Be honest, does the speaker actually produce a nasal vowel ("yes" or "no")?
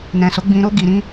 yes